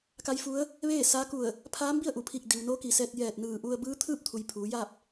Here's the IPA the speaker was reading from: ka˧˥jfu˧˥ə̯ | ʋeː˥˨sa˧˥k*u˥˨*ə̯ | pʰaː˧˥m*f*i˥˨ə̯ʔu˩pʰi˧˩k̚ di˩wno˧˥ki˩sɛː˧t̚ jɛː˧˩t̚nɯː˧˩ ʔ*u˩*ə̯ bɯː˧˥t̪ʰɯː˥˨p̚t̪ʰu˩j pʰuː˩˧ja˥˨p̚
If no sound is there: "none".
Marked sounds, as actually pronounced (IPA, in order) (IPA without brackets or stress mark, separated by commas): u˧˩, b, u˧